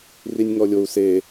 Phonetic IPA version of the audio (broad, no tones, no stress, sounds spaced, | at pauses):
r i nʲ ŋ ɔ lʲ o u̯ s e